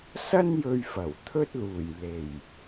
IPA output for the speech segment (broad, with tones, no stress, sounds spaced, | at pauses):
s ɐ˥ n j ɵ˧ ɥ f ɐ˨˩ w t̪ʰ ɵ˥ t̚ l uː˨˩ j l e˨˩ j